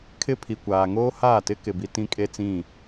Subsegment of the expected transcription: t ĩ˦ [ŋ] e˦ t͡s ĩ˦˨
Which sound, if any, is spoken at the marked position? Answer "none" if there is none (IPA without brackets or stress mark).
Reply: kʼ